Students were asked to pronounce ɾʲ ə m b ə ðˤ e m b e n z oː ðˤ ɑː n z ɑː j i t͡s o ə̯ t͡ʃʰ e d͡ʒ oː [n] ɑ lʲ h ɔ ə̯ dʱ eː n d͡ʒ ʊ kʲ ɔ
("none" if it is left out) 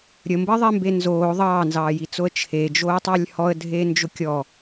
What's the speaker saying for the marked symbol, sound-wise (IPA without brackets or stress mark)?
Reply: tˤ